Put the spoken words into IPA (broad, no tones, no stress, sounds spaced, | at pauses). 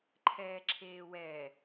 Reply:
ǃʰ ɛː ǁʰ eː w ɛ